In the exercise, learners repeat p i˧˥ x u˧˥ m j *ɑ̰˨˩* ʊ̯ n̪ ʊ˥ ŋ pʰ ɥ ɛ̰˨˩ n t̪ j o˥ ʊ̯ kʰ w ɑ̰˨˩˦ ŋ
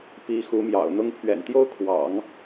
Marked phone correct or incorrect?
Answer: correct